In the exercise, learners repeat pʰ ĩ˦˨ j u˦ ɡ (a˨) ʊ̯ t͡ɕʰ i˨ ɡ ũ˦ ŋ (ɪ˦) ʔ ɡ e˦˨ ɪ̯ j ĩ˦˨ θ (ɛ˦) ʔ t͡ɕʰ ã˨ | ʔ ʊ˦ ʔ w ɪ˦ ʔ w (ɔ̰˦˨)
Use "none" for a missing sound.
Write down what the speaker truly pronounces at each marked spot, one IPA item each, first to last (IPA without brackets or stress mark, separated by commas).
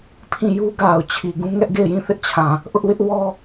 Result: a˨, ɛ˦, ɪ˦, ɔ˦